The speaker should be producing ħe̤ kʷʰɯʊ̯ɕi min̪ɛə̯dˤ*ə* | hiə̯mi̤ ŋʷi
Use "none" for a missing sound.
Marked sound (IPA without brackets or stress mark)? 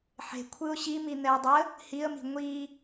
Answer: ə